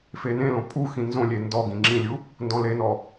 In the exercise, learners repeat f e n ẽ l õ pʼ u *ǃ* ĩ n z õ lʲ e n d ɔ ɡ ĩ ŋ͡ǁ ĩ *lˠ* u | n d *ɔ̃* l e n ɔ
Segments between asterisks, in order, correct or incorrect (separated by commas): incorrect, incorrect, correct